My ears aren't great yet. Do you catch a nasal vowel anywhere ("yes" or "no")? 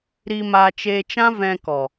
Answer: yes